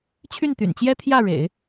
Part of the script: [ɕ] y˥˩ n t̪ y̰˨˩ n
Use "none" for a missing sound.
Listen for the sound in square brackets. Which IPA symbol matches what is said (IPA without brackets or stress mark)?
t͡ɕʰ